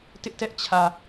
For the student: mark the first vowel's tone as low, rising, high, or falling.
high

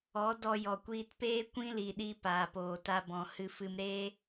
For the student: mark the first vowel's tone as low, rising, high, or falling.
rising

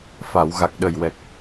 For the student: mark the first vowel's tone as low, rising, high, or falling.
low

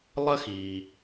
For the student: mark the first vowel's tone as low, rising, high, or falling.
high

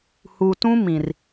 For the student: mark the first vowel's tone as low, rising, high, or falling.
low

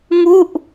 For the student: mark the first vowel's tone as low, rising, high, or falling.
falling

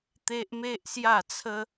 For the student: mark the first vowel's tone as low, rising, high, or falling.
high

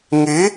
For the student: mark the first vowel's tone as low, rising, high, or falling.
rising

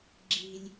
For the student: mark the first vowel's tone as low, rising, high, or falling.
low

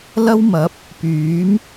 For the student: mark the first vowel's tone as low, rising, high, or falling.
high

